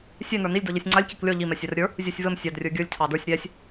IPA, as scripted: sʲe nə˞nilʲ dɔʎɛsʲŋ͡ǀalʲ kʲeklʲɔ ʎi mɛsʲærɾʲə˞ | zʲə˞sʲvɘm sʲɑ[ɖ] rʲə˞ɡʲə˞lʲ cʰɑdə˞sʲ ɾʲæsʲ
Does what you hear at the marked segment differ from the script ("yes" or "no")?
yes